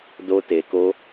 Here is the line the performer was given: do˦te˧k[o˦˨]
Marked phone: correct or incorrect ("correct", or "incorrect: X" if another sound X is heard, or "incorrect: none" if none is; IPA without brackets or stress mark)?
incorrect: o˦